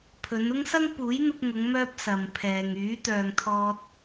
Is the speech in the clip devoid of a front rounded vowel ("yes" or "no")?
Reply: no